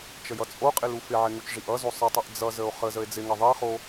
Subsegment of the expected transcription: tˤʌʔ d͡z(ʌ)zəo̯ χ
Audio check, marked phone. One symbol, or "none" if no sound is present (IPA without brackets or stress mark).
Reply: ʌ